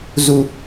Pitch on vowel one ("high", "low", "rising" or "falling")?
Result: low